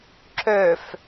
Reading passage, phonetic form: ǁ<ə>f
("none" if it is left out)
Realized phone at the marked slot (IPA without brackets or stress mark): ø